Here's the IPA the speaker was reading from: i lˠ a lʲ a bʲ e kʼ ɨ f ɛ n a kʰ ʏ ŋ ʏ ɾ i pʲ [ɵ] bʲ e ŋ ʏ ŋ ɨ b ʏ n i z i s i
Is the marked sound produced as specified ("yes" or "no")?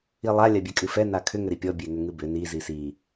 no